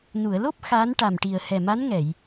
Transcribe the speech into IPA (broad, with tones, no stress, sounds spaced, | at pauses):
n u˨˩˨ ə̯ l o˦˥ p̚ x a˧˥ n ʈ a˨˩ m ʈ i˨˩ ə̯ h ɛ˨˩ m a˧˥ n ŋ ɛ˨˩˨ j